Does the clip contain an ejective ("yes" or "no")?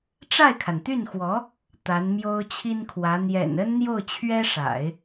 no